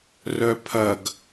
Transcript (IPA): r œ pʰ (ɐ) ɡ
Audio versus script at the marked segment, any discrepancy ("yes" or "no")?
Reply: no